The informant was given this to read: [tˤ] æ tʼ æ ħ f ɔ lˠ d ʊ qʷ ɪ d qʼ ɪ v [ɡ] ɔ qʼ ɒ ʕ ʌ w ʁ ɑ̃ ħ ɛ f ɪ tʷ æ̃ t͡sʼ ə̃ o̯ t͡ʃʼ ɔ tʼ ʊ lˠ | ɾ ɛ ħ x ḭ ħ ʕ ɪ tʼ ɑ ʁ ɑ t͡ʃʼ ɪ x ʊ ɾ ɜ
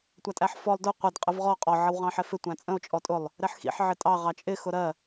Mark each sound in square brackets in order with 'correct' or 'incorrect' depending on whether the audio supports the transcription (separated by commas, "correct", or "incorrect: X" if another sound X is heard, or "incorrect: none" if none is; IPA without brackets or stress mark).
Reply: incorrect: tʷ, incorrect: ʁ